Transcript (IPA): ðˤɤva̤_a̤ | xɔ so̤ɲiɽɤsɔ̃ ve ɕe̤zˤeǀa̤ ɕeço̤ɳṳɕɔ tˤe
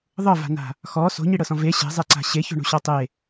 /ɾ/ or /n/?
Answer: n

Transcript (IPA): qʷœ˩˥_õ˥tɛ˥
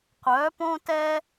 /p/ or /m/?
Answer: p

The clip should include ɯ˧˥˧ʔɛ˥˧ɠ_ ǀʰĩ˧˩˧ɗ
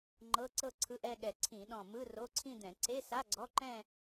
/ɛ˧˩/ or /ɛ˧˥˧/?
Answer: ɛ˧˩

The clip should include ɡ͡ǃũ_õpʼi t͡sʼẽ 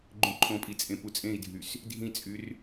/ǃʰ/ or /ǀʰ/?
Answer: ǃʰ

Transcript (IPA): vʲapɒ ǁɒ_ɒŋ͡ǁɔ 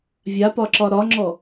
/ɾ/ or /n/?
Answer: ɾ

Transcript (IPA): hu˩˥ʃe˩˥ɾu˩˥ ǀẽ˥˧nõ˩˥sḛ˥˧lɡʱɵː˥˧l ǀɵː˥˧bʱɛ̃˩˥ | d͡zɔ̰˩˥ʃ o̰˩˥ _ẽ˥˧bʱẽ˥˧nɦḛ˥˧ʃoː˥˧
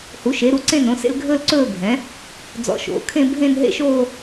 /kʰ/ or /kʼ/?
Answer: kʰ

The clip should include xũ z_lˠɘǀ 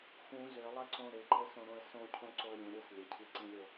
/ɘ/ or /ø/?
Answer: ø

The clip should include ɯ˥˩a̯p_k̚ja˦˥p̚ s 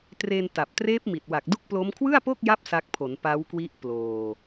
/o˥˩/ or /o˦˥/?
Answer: o˥˩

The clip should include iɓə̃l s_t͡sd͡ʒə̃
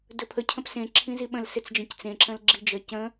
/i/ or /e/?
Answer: e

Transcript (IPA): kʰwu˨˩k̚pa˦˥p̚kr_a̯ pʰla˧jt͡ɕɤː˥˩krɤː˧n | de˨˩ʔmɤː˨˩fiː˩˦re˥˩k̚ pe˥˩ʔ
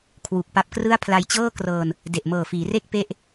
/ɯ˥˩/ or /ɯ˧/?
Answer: ɯ˥˩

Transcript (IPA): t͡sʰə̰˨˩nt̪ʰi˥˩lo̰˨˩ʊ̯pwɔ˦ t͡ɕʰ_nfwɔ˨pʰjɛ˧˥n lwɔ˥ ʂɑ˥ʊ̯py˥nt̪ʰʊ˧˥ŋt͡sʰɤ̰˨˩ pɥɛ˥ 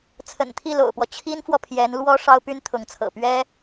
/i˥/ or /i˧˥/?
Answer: i˥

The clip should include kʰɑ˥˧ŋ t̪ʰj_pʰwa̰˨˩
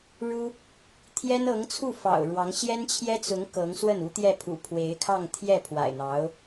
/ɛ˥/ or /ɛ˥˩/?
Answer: ɛ˥˩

